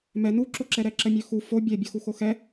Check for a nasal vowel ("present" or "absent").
absent